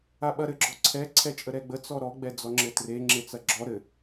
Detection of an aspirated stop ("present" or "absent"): present